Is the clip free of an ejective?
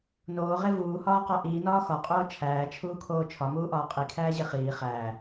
no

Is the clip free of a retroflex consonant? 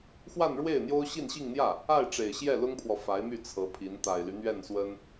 no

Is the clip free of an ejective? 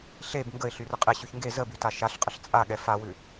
no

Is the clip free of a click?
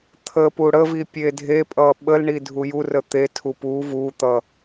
yes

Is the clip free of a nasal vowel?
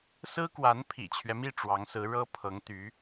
yes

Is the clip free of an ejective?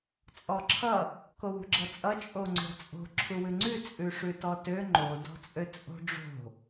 no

